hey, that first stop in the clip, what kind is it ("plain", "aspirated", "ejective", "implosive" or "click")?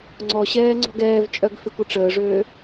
click